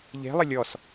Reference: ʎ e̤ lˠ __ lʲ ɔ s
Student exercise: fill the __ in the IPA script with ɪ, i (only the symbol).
ɪ